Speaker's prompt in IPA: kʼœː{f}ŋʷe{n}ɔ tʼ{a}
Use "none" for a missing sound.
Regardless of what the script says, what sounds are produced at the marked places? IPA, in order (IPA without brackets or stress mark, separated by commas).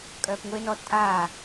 p, n, aː